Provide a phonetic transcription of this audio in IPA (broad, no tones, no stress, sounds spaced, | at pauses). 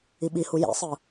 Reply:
i ɓ i h u j ḭ sˤ ɯ